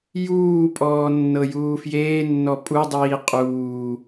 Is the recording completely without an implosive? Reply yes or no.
yes